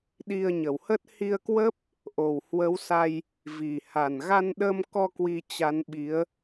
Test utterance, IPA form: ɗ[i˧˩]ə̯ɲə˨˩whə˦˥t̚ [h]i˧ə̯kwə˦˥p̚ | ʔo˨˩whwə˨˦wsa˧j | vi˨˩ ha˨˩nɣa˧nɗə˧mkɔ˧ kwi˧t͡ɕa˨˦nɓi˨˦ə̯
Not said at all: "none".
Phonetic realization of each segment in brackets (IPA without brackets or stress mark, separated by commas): i˧, h